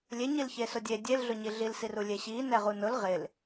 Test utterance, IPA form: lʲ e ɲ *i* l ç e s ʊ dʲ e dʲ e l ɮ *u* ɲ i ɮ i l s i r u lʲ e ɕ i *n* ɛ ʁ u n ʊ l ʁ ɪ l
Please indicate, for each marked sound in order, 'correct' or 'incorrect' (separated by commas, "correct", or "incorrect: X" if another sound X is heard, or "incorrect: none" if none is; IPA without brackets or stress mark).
correct, incorrect: ʊ, correct